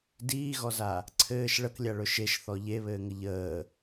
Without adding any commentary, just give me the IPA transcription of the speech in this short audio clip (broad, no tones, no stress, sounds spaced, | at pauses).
d iː ɣ ɔ z a | ǀʰ ɘː ʃ ɭ ə k lʲ a ɭ ɵ ʃ e ʃ θ ɔ ʎ e β ɘː ŋ ə ʎ əː